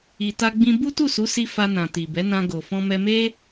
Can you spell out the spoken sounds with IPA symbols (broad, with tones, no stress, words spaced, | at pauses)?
i˨ta˧ ɡ͡bĩ˧ bu˦tu˦˨su˨˦si˧ fa˧nã˨ti˨ bɛ˨˦nã˧ɡo˨ fɔ̃˧mɛ˧me˦